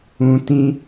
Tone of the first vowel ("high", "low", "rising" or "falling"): low